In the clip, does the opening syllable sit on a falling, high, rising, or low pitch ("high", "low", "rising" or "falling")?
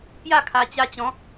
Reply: falling